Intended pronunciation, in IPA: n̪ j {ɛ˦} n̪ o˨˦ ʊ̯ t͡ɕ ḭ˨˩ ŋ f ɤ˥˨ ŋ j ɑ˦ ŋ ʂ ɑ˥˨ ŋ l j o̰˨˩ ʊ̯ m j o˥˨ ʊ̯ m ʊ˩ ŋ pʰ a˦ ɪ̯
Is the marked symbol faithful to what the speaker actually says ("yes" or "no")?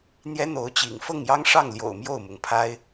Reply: yes